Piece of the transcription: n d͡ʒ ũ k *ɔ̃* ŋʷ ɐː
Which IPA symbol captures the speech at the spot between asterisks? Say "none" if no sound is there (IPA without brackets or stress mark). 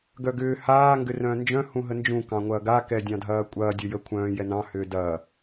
ɑ̃